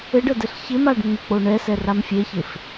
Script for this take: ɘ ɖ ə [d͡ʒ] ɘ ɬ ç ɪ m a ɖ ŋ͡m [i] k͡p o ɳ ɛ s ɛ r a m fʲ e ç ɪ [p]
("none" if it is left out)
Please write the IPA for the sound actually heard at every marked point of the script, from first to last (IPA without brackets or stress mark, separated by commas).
d, ɪ, f